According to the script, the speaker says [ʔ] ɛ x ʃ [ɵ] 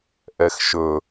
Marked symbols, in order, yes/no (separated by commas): yes, yes